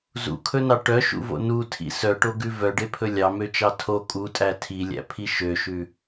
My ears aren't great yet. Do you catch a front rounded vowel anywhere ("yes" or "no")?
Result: yes